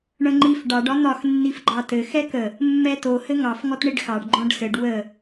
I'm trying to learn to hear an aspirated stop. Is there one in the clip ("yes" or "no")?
no